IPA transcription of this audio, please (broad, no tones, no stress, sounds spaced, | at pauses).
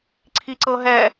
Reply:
ǀʰ i ǀ ɤ ɦ ɛ